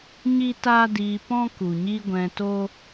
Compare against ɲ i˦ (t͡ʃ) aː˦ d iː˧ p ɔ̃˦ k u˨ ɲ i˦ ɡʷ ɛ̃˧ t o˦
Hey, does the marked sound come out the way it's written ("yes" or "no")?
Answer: no